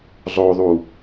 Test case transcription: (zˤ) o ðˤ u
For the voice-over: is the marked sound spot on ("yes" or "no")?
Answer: yes